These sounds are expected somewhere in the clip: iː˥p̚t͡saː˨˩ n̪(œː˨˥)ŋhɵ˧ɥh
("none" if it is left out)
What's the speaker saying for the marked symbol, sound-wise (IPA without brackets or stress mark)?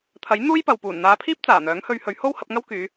œː˨˥